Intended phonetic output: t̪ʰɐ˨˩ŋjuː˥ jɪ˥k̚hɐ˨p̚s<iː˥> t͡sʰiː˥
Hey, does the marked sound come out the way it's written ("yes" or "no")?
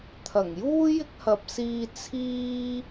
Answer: no